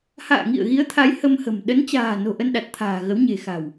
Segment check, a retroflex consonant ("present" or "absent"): absent